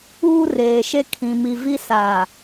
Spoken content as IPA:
uː˦ r eː˨ ʃ e˦ kʰ ĩ˨ m i˨ v i˦ s a˨

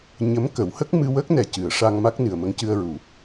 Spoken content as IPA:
ɲ ə˧˥ m k ə˨˩˦ w h ə˦˥ k̚ m ɨ˧ w ə˦˥ k̚ n ɛ˨˩ c ɨ˨˩˨ ə̯ ʂ a˧ ŋ m a˦˥ k̚ n ɨ˨˩ ə̯ m ə˧ ŋ c ɨ˧ ə̯ ɹ u˨˩˨

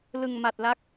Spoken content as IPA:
l ɯ˨˩ ŋ m a˨˩ t̚ l a˦˥ k̚

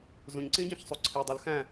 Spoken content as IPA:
z ũ ɲ ǀ ĩ ɟ ɔ̃ ç sˤ u ǀʰ i dˤ u l x æ̃

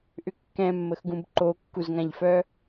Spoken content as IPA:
ʔ ʏ kː ɛ̃ mː ə x ɡ ũ b ǃ o kː u z ŋ ã ʎ f œ

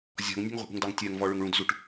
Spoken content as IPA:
zʲ ɔ̤ ŋ nʲ ə̤ ŋ ʁʷ ə̤ ʔ ṳ ŋ d ɑ ŋ tʲ ɜ ŋ v ɔ ɭ ʊ ŋ ɭ ũ d z u ʈ

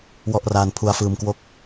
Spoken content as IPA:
w ɔ˥˩ ʔ r aː˧ n pʰ u˧ a̯ f ɯː˧ m k w o˥˩ k̚

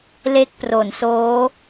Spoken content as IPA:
l e˥˩ k̚ p r o˩˦ n s oː˦˥

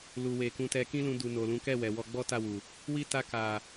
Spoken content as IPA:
l u˨ w e˨ k ũ˨˦ t ɛ˧ k ĩ˦ l ũ˧ d u˨ n o˨ l ũ˨˦ k ɛ˦˨ w ɛ˨ w ɔ˧ ɡ͡b ɔ˦ t a˦˨ w u˨ | w i˦ t a˧ k a˨

